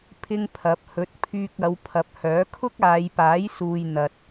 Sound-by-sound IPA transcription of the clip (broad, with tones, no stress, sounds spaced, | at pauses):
pʰ ɪ˥ ŋ pʰ ɐ˨˥ p̚ h ɵ˨˥ t̚ pʰ yː˧ k̚ ɐ˨˧ w pʰ ɐ˨ p̚ h œː˨˥ kʰ ʊ˥ k̚ aː˨˧ j p aː˨˥ j s uː˨ j n̪ ɐ˨ t̚